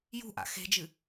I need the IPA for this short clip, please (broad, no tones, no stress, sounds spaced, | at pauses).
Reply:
j ṳ ʔ a̰ x e̤ d͡ʒ ɨ